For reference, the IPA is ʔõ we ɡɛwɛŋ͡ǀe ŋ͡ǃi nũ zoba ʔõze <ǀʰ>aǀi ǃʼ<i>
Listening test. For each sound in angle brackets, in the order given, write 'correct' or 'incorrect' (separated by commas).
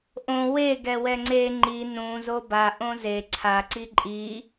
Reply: correct, correct